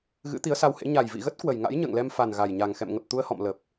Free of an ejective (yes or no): yes